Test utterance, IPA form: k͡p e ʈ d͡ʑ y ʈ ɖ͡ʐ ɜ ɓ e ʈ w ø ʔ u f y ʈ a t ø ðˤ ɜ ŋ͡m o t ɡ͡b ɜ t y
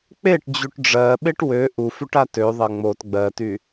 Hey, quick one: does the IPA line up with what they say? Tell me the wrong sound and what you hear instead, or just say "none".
none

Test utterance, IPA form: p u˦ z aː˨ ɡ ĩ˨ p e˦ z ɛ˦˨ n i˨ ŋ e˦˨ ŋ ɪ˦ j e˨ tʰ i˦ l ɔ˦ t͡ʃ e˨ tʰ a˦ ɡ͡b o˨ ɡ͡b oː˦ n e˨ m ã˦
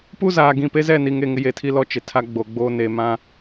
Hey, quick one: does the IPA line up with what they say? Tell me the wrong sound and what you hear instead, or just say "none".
none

